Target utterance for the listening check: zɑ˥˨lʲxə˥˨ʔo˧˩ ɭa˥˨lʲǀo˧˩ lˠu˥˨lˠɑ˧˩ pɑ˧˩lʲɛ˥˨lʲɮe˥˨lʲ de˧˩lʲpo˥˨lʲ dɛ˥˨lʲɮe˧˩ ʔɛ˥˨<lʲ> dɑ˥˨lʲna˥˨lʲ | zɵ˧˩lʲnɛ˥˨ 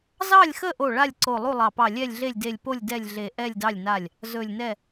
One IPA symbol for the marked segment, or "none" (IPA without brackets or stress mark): lʲ